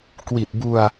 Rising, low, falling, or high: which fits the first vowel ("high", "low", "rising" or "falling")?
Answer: low